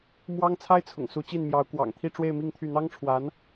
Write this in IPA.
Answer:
m w ɑ˥ ŋ t͡sʰ a˥ ɪ̯ t͡sʰ ʊ̰˨˩ ŋ s u˧˥ t͡ɕ i˥˩ n m j ɑ˧˥ ʊ̯ k w ɑ̰˨˩ ŋ t̪ʰ i˥˧ ʈ͡ʂ w e˥˧ ɪ̯ m i˥˧ ŋ t̪ʰ y˥˩ n̪ ɑ˥ ŋ ʈ͡ʂʰ w a˧˥ n

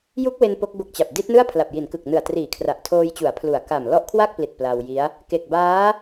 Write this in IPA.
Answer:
j u˦˥ k̚ w e˧ n p o˦˥ k̚ b o˦˥ k̚ t͡ɕ a˨˩ p̚ d i˦˥ t̚ n ɯ˥˩ a̯ pʰ l a˨˩ p̚ j i˩˦ n k ɯ˨˩ k̚ n ɯ˨˩ a̯ t r iː˨˩ kʰ r a˨˩ ʔ tʰ oː˧ j t͡ɕ u˩˦ a̯ pʰ l u˨˩ a̯ k a˨˩ m l ɔ˦˥ ʔ kʰ w a˥˩ k̚ p l i˨˩ t̚ p l a˧ w j i˦˥ a̯ | k e˨˩ k̚ b aː˦˥

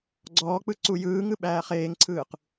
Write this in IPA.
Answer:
ɡ͡ǀ ɔː k͡p ɯ ǀ u j ɯː ŋ ɯ ɓ æː χ eː ŋ ǀʰ ɯː q

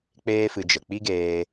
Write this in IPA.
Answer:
k͡p eː˦ f ɨ˧ d͡ʒ ə˨ k͡p i˦ ɡ eː˧

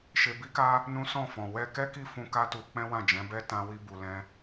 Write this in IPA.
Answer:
ʃ e˧ b i˦ k a˦ | n ũ˦ s ɔ̃˦˨ f ɔ̃˨ w ɛ˧ k ɛ˦ k i˦˨ f ũ˧ k a˦ t u˧ k͡p ɛ̃˦ w ã˦˨ d͡ʒ ɛ̃˨˦ b ɛ˦ t ã˧ w i˧ b u˨ l ɛ̃˧

